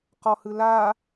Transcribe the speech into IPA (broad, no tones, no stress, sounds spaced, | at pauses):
q ɔ h ɯ l aː